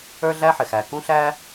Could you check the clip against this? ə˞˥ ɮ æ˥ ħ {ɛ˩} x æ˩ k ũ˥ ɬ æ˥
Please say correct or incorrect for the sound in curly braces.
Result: incorrect